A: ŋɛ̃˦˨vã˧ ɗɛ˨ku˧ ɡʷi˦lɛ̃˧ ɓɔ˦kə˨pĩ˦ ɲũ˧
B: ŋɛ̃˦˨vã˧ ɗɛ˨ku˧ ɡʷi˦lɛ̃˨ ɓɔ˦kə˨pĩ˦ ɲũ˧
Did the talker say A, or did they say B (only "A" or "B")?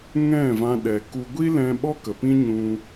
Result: A